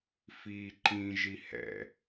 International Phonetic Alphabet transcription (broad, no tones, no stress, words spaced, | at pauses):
fiːǃĩ ʒihɛ̰